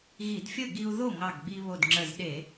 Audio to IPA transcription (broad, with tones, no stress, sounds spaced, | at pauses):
ɣ i˧˩˧ d fʲ ə˥˩ ɡ i˧ u̯ ð o˥˩ ŋ ɑ˧˩ ɡ ɡ͡b i˧ β o˧˩ d ŋ͡ǁ ə˧˩ z ɗ e˧˩˧